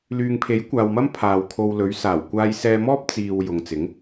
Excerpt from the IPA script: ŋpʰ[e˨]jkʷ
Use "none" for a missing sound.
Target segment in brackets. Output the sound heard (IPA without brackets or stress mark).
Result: e˨˥